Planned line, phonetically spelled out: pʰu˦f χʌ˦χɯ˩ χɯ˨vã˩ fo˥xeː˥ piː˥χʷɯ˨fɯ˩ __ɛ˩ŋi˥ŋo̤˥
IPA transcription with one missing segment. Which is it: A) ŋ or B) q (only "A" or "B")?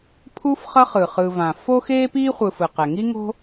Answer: B